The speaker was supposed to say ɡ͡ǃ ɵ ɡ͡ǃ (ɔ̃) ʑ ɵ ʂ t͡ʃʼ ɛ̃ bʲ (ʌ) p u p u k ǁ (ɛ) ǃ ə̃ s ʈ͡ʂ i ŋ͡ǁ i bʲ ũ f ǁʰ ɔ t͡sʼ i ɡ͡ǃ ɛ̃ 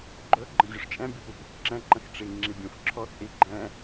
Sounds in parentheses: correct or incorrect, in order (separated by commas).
incorrect, correct, incorrect